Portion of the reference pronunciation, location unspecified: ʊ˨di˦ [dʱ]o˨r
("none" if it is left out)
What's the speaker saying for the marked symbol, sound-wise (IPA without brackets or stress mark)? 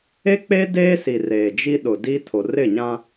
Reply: tʰ